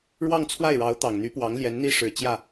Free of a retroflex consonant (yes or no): no